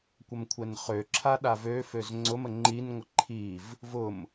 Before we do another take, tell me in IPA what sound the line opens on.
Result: kʷ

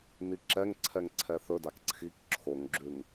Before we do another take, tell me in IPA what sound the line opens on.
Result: n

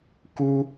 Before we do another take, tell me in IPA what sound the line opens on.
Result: k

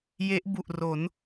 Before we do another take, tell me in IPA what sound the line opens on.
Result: j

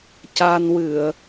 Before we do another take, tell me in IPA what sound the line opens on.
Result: c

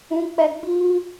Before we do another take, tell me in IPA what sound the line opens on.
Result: ũ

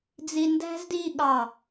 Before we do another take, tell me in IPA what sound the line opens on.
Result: d͡z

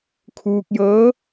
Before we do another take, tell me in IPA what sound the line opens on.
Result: kʰ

